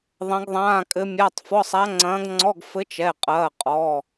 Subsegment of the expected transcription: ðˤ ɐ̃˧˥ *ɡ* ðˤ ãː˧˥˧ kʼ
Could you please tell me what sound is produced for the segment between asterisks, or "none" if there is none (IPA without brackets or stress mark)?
ɡ